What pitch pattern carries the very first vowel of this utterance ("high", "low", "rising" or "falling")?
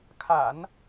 low